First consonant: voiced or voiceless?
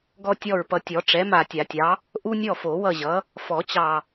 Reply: voiced